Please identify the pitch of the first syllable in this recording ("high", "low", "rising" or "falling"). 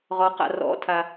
rising